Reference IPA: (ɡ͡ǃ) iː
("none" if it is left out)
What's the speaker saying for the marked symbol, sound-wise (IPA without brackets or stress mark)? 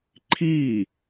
ǃʰ